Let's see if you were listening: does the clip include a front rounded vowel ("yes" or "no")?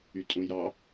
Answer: yes